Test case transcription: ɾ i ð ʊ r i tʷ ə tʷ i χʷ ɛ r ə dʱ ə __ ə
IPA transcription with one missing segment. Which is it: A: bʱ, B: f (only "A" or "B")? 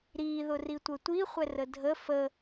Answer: B